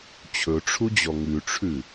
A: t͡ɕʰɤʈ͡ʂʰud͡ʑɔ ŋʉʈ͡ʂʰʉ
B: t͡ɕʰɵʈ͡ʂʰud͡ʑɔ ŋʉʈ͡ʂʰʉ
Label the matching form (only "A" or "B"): B